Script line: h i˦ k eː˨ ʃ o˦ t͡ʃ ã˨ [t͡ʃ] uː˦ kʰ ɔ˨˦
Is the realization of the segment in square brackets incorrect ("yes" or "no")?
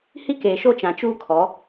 no